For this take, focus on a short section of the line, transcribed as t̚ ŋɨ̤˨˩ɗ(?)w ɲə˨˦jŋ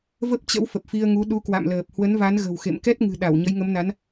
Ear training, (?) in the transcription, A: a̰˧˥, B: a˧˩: B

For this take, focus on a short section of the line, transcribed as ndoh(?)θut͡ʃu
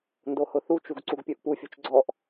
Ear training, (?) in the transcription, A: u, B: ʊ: B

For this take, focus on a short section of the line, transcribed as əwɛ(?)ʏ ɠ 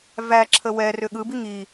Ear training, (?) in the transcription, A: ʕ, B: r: B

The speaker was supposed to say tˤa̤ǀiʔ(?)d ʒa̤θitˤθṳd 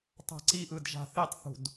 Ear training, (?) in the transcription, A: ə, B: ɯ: B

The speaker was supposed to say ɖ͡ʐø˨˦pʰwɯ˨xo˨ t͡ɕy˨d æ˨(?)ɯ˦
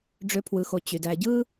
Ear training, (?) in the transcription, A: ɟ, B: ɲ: A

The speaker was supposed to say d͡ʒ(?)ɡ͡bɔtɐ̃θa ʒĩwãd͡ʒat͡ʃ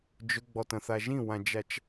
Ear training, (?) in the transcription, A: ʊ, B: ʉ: A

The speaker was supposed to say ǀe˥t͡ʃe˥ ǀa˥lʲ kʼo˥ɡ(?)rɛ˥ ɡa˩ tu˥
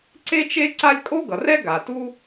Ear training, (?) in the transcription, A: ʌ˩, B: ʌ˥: A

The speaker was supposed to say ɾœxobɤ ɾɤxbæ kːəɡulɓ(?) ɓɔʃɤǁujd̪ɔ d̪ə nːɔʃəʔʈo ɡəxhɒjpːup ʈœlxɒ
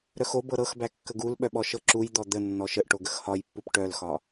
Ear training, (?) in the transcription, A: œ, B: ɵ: A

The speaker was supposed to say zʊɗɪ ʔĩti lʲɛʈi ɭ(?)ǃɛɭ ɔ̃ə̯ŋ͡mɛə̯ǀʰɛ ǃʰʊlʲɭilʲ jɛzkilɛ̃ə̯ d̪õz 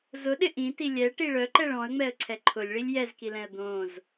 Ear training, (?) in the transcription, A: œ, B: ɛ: A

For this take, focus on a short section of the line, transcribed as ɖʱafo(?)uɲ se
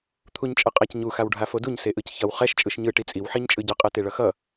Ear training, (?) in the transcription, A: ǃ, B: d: B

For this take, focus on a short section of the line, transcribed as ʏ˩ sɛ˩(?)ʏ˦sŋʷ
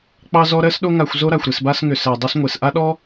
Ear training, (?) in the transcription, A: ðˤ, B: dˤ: B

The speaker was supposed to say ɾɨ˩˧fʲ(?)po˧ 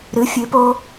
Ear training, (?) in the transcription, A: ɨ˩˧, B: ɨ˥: A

